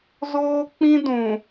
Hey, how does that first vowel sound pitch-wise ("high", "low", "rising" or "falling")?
high